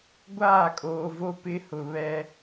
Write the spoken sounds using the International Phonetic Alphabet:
ɡʷ aː˦˨ kʼ oː˨ v o˦ p ɪ˦ h ʊ˨ β ɛ˦

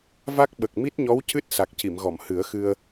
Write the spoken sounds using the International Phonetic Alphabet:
v a˦˥ k̚ ɓ ə˨˩ k̚ m i˦˥ t̚ ɲ ɔ˧˥ w c ɨ˦˥ t̚ s a˨˩ k̚ c i˨˩˨ m ɣ ɔ˨˩˨ m h ɨ˨˩˦ ə̯ x ɨ˧ ə̯

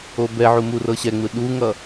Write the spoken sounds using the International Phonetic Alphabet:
o b ɛ ʕ u m u r ɤ ɕ ɛ ŋ͡m ɯ ɗ u ŋ ʌ

